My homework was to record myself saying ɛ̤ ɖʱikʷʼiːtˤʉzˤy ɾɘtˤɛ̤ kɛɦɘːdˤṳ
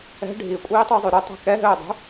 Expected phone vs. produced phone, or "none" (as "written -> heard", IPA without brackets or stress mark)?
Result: none